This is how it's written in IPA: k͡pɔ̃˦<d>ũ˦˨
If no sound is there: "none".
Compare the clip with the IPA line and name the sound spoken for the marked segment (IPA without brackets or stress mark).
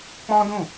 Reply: d